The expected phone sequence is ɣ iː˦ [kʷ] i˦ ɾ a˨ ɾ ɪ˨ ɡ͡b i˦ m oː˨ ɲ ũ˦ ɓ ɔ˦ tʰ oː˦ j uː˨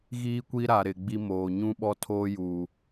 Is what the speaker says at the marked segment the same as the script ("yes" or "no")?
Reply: yes